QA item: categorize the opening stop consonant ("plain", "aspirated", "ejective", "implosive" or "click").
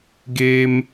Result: plain